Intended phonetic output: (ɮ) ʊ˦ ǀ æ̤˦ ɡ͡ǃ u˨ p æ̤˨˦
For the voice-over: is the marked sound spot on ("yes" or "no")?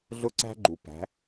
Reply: yes